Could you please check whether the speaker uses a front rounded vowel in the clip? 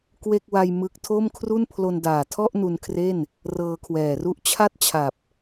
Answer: no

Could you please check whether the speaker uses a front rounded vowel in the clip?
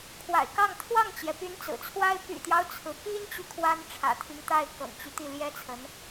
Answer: yes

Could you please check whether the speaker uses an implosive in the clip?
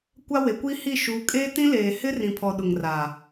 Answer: yes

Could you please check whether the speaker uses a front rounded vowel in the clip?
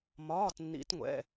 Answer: no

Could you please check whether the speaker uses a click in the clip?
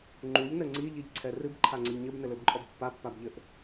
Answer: yes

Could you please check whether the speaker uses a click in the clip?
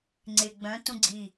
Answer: yes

